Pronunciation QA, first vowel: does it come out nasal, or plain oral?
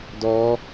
oral